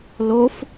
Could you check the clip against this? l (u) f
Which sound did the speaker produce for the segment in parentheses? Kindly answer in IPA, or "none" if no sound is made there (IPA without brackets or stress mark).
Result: o